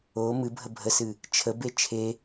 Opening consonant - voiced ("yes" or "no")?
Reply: yes